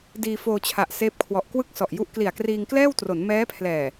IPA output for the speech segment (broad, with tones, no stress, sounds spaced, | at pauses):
d iː˧ f oː˧ t͡ɕʰ a˨˩ ʔ s eː˦˥ p̚ kʰ w ɔ˨˩ ʔ k w ɯ˥˩ k̚ s ɔ˨˩ ʔ j u˦˥ ʔ k l i˨˩ a̯ k r iː˧ ŋ k l ɛː˥˩ w t r o˩˦ n m ɛː˦˥ pʰ l ɛː˨˩